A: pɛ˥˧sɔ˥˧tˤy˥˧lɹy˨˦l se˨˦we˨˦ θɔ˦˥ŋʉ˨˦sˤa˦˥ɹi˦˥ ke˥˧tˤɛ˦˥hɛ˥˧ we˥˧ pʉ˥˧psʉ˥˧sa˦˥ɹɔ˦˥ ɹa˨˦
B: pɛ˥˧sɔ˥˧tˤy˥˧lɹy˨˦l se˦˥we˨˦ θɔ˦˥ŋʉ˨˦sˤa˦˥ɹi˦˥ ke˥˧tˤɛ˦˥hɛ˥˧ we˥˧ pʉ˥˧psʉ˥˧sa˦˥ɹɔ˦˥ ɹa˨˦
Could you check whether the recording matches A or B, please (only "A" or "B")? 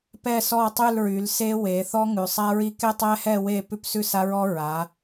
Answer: B